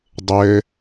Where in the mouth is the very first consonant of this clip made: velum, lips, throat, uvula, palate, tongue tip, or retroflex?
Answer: tongue tip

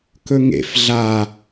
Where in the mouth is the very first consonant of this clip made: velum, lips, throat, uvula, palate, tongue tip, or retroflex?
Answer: velum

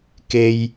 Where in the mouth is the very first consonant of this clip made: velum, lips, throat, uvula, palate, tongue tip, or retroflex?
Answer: velum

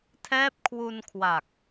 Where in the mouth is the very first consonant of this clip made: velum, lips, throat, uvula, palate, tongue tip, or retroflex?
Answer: tongue tip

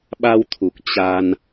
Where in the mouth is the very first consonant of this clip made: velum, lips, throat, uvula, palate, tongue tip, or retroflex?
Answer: lips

